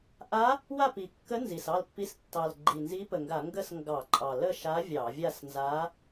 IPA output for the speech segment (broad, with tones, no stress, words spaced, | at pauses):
ʔa˧˥ | wa˥˨pi˨˩kːə˧˥ nzi˨˩sɑ˥˨lpːi˧˥s tːɑ˨˩lɡ͡ǃi˨˩nzi˧˥ pə˨˩ŋɡa˧˩˧ ŋɡə˥˨s ŋɡɑ˧˩˧ǃʼɑ˨˩ lə˥˨ʃa˧˥ vʲɑ˧˩˧vʲa˥˨snza˧˥